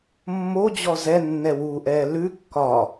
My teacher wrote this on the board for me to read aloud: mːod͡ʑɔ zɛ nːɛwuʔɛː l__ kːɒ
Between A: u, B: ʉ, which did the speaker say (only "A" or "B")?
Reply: B